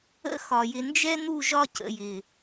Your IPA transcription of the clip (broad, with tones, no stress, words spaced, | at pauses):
ə̰˦ xɒ˨jɪ˧ nd͡ʒɛ˦n̪u˦˨ ʒɒ˦cə̰˨jɪ˨